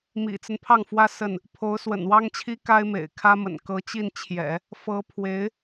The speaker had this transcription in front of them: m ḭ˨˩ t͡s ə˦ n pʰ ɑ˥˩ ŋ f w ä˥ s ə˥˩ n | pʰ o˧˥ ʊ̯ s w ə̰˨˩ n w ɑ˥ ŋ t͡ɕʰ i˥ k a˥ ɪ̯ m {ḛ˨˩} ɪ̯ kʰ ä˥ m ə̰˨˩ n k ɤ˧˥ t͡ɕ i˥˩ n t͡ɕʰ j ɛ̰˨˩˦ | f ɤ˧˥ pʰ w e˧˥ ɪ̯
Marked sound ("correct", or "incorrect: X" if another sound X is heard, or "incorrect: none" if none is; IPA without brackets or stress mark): correct